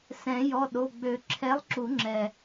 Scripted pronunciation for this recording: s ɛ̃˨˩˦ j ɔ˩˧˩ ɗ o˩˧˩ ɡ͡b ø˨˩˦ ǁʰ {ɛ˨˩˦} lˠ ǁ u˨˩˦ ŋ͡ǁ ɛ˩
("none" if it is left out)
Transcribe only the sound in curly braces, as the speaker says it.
ɛ˨˥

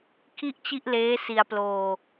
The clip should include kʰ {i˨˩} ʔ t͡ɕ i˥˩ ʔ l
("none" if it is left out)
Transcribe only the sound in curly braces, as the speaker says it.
i˥˩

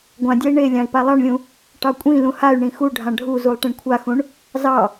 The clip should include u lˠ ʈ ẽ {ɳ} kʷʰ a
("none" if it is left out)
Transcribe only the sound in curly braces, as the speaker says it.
ɳ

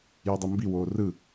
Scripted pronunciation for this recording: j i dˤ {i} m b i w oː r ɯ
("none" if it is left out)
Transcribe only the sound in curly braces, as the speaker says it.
i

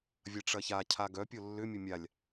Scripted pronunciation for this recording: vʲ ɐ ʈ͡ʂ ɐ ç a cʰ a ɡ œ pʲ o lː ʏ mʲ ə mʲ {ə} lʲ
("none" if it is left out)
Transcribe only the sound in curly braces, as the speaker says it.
a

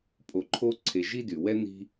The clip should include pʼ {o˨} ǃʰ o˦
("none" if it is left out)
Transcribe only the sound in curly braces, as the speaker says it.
o˨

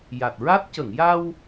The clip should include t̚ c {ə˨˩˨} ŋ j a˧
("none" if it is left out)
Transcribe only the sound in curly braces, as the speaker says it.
ə˨˩˨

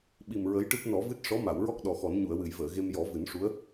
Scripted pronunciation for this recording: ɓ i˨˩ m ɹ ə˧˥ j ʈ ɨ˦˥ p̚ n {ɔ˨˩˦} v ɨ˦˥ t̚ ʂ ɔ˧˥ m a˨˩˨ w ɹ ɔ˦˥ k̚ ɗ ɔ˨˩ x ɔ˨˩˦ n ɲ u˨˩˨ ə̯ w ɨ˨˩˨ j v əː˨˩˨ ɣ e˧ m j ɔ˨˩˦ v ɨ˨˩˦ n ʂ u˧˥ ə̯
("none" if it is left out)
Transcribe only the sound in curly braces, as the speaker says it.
ɔ˨˩˦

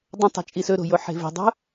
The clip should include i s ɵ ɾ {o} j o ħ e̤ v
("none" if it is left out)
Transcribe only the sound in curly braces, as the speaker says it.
o̤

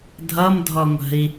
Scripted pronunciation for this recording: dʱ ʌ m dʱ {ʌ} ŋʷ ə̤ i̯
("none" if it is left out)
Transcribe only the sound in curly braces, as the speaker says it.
ɔ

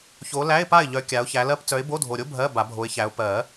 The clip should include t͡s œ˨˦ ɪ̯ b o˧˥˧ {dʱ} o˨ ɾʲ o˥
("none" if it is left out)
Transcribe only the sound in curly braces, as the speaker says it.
dʱ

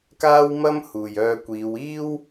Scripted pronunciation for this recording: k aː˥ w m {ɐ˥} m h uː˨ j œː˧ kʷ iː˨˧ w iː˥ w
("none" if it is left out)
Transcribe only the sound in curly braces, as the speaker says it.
ɐ˥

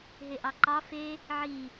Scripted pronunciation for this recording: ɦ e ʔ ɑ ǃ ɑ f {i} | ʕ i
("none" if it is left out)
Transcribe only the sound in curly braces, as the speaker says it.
e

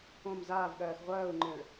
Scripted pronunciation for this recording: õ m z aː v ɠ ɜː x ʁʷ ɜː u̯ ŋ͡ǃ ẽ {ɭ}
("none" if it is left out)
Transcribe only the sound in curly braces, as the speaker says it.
ɭ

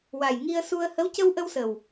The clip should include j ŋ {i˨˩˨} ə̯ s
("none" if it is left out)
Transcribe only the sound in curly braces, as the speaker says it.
i˧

